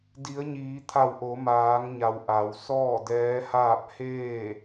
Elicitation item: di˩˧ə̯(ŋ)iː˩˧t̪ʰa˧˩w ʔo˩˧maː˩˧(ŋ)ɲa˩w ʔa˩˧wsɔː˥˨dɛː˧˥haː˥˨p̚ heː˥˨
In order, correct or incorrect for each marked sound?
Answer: incorrect: ɲ, correct

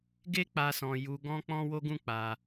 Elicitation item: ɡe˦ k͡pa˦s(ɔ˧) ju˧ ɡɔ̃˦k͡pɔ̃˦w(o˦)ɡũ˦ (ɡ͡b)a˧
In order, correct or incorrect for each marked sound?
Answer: incorrect: ɔ̃˧, correct, incorrect: k͡p

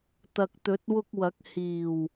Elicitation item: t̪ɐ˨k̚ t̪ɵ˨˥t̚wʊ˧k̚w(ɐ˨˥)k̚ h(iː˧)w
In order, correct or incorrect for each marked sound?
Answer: correct, incorrect: iː˨˩

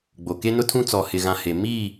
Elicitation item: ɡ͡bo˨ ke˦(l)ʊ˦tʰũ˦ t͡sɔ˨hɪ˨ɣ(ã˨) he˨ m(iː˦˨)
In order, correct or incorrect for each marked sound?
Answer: incorrect: n, correct, incorrect: i˦˨

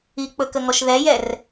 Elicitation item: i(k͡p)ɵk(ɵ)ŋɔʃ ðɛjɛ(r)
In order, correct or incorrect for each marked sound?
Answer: correct, incorrect: ə, correct

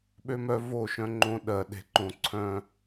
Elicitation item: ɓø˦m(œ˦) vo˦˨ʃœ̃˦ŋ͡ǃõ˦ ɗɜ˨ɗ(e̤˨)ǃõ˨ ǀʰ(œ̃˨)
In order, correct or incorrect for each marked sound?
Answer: correct, correct, correct

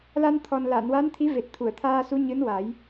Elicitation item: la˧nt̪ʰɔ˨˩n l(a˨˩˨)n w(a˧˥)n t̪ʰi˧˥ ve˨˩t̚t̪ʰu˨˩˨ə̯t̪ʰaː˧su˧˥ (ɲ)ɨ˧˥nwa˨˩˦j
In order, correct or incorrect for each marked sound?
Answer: correct, correct, correct

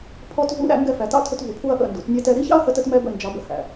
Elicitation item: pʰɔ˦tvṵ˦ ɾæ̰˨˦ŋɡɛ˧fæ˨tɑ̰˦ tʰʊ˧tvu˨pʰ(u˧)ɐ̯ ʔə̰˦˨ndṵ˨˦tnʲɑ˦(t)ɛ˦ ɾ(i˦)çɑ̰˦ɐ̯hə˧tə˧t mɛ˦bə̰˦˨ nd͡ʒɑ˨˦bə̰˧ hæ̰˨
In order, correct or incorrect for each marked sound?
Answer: correct, correct, correct

